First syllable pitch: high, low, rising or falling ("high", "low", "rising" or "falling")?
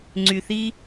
low